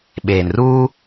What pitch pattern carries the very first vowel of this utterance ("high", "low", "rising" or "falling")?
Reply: low